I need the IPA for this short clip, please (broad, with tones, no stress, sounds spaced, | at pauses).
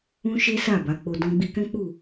ũ˦ ʃ e˦ s a˦˨ b a˨˦ k͡p o˧ d ɔ̃˧ ɡ͡b i˧ k ɛ̃˦ k͡p u˦˨